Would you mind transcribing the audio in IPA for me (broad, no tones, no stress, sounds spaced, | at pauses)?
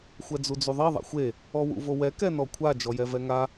xʷ ɛ d͡z u d͡z u ðˤ i ðˤ a̰ xʷ e | ɔ w ṵ v o w ɛ k ɛ n ɔ kʷʰ a d͡ʒ ɔ j ɛ v ɛ ŋ a